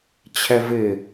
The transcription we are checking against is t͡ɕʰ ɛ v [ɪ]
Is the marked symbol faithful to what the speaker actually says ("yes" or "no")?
yes